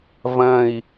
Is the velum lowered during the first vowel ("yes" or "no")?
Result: yes